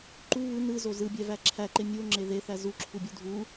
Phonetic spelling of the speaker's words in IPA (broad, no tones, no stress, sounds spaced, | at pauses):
ǃ u β ɯ n ɯ z o z ɯ bʲ æ v æ ǁʰ æ ǃ e mʲ u o̯ ŋ͡ǁ e ð e θ æ z u ǁʰ u bʲ u dʱ u